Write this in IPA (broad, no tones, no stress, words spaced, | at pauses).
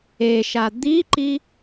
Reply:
eʃa d̪iǃi